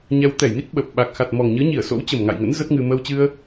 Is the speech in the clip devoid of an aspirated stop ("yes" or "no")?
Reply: yes